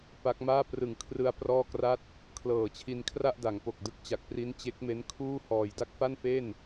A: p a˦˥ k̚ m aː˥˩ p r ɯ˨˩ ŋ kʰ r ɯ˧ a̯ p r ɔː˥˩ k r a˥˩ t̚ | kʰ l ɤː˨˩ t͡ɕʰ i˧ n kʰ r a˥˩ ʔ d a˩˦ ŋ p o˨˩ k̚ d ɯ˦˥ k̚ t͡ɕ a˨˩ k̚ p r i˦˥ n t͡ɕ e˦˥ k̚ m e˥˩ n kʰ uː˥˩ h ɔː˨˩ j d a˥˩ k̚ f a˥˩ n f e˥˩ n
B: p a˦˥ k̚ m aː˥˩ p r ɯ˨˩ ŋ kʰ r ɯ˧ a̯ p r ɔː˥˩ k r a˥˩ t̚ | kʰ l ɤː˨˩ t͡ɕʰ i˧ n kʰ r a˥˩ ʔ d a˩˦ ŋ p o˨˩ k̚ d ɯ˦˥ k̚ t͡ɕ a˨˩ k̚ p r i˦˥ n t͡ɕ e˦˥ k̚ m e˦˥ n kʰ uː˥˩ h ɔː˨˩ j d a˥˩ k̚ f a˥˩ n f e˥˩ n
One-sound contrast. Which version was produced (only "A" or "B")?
B